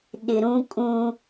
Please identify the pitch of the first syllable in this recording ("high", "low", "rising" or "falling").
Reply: low